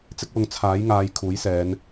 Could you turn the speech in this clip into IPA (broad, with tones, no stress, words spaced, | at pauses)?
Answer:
t͡sɪ˧k̚wʊ˨ŋ t͡sʰaː˨˥jŋaː˨˧j kʰuː˨˥jsɛː˨˧n